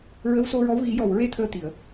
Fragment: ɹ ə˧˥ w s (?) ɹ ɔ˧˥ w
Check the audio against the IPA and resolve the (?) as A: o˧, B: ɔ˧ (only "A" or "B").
A